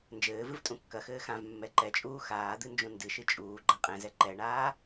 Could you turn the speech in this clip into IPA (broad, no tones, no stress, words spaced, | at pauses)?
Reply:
nd͡ʒɘːvɨv tʼũkːɐxɘː xãv mːɛǃɛt͡ʃʼuː xaːd̪ɨ nd͡ʒũndɨʃɨ t͡ʃʼuːɡ͡ǃa qʼɛ̃zɛ ǃɛɳaː